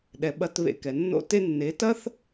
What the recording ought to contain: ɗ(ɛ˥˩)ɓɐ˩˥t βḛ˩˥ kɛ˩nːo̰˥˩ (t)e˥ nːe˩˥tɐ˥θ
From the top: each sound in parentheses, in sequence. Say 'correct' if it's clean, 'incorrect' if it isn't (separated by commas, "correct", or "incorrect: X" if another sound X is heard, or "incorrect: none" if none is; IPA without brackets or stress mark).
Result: incorrect: ɛ˩, correct